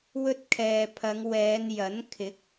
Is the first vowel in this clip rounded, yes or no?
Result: yes